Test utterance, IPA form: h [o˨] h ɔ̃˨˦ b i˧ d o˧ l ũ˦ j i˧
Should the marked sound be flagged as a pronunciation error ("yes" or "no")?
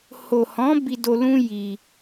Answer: no